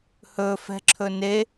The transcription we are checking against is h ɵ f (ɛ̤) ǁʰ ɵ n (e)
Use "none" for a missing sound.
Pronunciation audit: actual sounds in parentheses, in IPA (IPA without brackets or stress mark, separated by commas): ɛ̤, e